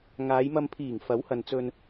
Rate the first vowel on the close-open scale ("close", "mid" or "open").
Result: open